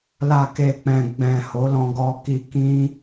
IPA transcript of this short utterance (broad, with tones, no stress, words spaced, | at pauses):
la˨ke˨k͡pɛ̃˨ ɡ͡bɛ̃˨ ho˨˦lɔ̃˧ɡɔ˧ ki˧ kĩ˦